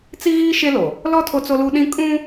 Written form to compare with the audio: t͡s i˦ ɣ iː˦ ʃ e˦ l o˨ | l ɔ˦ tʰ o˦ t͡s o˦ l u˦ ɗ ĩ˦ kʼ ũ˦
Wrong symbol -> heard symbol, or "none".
none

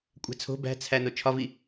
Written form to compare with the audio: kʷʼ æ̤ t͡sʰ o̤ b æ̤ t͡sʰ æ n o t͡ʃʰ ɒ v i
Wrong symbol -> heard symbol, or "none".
none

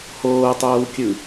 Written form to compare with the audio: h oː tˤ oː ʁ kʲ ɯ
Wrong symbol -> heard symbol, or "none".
ʁ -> w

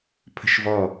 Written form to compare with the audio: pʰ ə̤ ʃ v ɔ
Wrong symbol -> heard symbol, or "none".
none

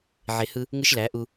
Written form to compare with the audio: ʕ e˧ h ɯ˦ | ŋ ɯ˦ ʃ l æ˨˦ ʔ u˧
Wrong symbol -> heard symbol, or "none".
none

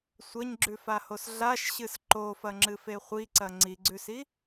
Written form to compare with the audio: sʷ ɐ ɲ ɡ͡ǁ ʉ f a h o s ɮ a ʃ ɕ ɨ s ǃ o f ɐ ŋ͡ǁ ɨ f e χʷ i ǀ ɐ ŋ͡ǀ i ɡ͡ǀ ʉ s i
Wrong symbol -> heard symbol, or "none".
none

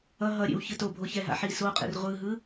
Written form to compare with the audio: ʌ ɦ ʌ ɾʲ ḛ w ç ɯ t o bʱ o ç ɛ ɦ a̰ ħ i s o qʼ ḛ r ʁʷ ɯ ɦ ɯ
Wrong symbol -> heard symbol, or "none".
none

